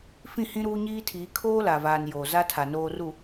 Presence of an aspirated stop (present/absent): present